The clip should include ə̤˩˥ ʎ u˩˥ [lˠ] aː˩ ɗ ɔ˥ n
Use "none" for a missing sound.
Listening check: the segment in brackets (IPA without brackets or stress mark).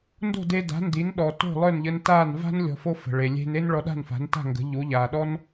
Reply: ʎ